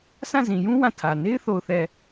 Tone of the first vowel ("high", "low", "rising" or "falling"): falling